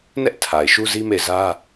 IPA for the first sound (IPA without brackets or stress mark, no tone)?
n